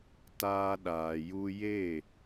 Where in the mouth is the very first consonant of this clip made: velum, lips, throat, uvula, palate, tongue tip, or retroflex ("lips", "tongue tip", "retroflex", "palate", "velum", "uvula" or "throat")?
tongue tip